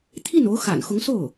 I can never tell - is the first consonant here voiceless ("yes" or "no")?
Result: yes